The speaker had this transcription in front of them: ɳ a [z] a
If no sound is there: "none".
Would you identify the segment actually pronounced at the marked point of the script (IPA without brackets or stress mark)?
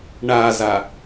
z